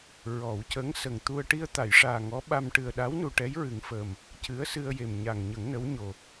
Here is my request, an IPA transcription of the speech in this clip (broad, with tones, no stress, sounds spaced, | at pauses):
ɹ ɔ˨˩˦ w c ə˧˥ ŋ s ə˨˩ ŋ t̪ u˧ ə̯ ʈ i˧ ə̯ t̪ a˨˩˨ j ʂ aː˨˩ ŋ ɔ˧˥ ɓ a˧ m ʈ ɨ˨˩ ə̯ ɗ a˧˥ w n u˨˩ ʈ ɛ˧˥ j ɹ ɨ˨˩˦ ŋ f əː˨˩ m | c ɨ˧˥ ə̯ s ɨ˧ ə̯ j e˨˩ m ɲ a˨˩ ŋ ɲ ə˨˩˦ ŋ n ə˧˥ w ɲ o˨˩